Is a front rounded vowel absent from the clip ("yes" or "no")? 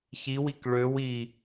no